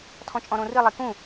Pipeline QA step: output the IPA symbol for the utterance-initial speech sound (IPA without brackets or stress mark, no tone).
tʰ